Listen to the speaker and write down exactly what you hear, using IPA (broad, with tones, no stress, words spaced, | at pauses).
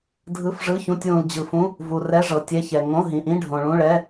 dʱɯ˧˥˧fʐɯ˧˥˧çũ˧˥˧tʲwũ˨l d͡ʑɯ˨fũ˧˥˧ | vu˨ rɛ˧˥˧ ʐɤ˨ tʲɛ˧˥˧çɛ˨ ŋõ˧˥˧ɦĩ˨ʔĩ˧˥˧ ɖʱõ˨ɭũ˧˥˧ɭɛ˧˥˧